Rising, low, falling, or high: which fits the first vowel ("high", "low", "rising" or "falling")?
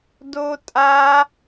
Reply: high